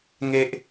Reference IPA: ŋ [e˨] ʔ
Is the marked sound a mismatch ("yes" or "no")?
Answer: no